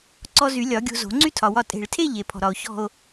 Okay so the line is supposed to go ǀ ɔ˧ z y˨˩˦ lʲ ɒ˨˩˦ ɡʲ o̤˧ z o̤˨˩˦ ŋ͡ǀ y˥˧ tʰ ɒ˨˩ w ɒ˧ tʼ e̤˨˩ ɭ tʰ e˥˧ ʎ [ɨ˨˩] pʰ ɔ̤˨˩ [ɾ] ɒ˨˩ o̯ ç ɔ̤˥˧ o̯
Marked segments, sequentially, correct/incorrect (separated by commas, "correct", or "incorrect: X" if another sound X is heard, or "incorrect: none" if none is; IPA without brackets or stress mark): incorrect: e˨˩, correct